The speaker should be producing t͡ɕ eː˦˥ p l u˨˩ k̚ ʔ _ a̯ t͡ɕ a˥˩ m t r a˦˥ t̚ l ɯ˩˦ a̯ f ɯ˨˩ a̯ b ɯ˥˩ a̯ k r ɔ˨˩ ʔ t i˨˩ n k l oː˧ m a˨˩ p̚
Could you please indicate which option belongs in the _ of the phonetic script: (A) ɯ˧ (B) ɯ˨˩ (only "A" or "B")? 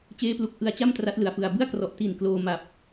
A